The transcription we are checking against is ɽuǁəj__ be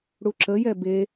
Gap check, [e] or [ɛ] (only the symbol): ɛ